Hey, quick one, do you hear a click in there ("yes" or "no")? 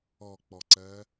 yes